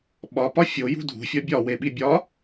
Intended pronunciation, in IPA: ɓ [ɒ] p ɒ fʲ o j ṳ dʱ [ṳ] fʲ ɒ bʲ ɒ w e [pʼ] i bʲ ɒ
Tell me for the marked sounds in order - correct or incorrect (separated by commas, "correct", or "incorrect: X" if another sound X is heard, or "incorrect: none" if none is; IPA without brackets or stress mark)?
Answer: correct, correct, incorrect: ɓ